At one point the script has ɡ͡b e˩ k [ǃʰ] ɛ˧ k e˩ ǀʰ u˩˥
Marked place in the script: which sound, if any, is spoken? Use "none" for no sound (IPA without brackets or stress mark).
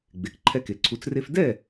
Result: ǃʰ